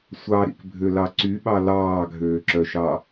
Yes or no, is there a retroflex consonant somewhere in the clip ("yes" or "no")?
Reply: no